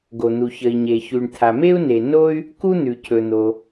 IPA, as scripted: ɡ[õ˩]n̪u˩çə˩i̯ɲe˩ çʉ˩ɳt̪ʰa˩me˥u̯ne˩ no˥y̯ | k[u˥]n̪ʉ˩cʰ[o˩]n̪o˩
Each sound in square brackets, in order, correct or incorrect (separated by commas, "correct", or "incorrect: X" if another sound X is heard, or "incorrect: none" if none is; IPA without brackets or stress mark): incorrect: o˩, correct, incorrect: ɵ˩